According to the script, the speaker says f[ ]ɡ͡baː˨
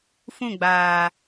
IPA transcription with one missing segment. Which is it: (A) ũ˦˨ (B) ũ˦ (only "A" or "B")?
A